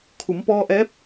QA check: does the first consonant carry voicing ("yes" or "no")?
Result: no